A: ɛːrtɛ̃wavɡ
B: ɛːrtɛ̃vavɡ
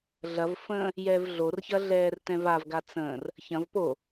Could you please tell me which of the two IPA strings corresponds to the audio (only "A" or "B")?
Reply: B